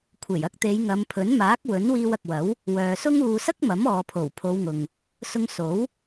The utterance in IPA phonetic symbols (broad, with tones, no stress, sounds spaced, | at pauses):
kʷʰ e˨˩ j ɐ˧ k̚ t̪ e˨˧ j ŋ ɐ˨˧ m pʰ ɵ˨˥ n m aː˨˥ k̚ w ɵ˨˥ n w iː˧ w ɐ˨ k̚ w ɐ˨˥ w | w œː˨ s ʊ˥ ŋ uː˧ s ɐ˥ k̚ m ɐ˨˥ m ɔː˨ pʰ o˨˩ w pʰ o˨˧ w ŋ ʊ˨ ŋ | s ʊ˧ ŋ s o˨˥ w